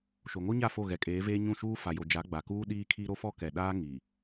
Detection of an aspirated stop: present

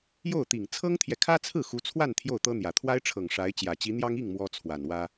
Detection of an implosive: absent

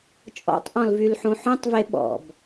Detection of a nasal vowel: present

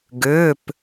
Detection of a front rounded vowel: present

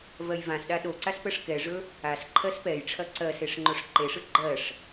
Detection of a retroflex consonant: present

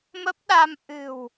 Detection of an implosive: present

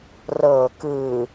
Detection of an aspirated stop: absent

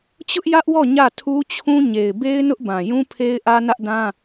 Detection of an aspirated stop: present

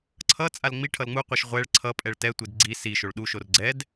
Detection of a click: present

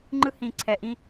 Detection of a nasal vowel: present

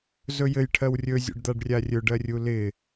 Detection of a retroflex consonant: present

